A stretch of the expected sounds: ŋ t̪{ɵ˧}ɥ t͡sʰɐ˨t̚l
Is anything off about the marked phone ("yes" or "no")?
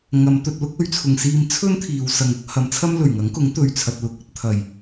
no